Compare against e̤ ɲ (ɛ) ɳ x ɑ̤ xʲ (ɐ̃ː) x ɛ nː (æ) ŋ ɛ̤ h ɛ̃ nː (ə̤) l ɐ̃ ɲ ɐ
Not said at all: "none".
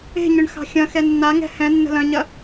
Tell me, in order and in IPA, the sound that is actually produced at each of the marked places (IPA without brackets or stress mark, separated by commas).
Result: ʏ, ɐ̃, a, ə̤